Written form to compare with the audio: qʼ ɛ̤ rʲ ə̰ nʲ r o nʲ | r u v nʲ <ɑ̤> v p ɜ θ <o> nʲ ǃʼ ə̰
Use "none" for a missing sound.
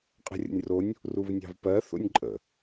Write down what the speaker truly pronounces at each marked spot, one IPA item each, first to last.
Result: ɑ̤, o̰

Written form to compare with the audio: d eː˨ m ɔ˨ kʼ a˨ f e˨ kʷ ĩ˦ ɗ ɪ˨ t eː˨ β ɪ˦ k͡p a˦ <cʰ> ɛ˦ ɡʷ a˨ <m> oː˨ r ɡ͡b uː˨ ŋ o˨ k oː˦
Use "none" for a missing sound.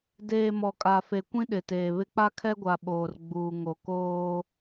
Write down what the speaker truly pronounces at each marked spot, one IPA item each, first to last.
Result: kʰ, ɓ

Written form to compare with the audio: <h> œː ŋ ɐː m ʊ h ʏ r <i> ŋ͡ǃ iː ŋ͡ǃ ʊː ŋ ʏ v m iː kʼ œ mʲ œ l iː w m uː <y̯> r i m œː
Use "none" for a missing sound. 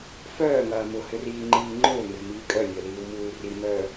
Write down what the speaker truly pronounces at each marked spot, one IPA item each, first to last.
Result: f, iː, y̯

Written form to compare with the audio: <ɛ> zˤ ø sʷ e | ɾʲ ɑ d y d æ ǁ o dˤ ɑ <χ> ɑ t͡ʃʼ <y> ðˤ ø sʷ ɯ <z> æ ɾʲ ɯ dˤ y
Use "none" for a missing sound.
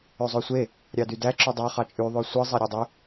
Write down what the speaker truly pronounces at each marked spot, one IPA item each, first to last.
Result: ø, χ, y, zˤ

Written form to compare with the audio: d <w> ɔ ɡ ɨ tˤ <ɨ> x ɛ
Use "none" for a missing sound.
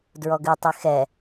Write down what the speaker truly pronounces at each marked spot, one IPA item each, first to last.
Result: ɹ, i

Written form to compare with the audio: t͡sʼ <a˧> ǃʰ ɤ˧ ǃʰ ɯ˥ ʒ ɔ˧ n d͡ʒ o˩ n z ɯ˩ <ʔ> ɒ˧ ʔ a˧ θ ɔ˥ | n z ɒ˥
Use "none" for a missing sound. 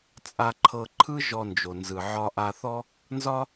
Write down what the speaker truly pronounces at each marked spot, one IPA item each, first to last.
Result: a˧, ʕ

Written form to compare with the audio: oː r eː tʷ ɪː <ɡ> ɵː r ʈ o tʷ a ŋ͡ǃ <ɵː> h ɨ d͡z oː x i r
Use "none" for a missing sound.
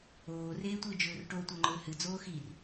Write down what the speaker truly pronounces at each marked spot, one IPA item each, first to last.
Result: d͡ʒ, ɵː

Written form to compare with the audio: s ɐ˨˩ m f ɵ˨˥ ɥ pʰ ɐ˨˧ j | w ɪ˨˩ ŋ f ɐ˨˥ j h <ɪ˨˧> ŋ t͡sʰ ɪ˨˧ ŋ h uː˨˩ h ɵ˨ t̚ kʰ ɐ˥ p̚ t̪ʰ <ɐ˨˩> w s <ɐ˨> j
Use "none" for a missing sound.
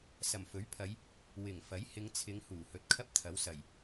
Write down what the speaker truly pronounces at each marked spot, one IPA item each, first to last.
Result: ɪ˨˧, ɐ˨˥, ɐ˨˩

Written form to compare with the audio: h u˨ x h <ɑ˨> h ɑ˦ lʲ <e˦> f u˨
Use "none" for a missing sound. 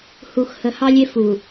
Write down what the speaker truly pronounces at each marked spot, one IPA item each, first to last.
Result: ə˨, e˦

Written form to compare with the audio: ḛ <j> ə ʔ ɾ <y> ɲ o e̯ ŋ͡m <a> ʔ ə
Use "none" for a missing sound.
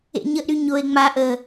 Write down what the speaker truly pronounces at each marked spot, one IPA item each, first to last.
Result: ɲ, y, a

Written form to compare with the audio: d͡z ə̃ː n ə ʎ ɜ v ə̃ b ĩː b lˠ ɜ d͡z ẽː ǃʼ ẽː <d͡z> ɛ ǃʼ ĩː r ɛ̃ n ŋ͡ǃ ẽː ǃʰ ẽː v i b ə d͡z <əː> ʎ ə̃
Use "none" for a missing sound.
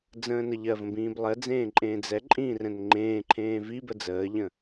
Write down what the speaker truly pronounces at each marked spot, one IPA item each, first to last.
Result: d͡z, əː

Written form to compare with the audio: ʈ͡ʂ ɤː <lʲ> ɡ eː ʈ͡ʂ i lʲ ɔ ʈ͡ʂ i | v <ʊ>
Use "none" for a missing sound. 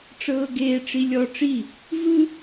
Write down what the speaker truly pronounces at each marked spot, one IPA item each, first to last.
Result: none, ɯ

